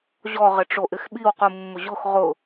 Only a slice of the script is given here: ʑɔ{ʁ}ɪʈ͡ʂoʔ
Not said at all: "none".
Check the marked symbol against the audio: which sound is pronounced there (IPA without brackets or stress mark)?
ʁ